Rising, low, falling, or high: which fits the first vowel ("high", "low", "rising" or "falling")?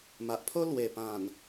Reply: low